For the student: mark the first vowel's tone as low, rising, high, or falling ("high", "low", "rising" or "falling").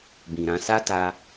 low